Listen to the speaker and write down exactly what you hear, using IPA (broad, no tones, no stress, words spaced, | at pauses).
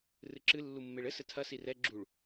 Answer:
rɨǁɨ lːumːeɭɘ sɘtʰɐ sirɛ ɡ͡ǁuɭ